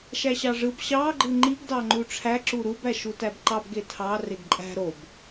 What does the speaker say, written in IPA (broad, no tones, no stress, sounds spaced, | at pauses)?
ʃ æ ɕ ɑ ʐ ɯ b ɕ ɑ ɡ͡ǃ ɯ ŋ͡ǃ i ɡ d ɑ ŋ͡ǃ u ʈ͡ʂʰ æ ǁ u ɾ u b æ ʃ u t æ b ǃ ɑ b ɡ e tʰ ɑ r e ɡ ǃʼ æ̤ ɾ o b